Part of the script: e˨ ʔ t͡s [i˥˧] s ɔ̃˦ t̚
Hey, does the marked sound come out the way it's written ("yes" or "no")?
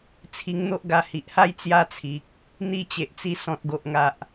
yes